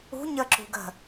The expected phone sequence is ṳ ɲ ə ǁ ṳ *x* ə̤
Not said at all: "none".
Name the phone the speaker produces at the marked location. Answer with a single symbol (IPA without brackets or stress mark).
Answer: ɡ